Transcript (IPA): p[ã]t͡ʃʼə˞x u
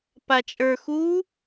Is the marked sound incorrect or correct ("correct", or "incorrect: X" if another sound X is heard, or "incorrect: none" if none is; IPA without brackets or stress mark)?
incorrect: a